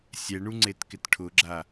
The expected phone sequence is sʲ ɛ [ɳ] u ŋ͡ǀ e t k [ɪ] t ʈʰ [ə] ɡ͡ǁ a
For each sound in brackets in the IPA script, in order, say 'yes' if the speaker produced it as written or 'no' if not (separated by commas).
yes, yes, no